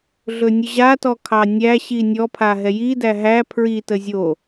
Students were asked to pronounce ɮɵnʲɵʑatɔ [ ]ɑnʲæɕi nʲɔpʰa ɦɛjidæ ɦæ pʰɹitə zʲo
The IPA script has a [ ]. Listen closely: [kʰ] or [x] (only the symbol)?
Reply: kʰ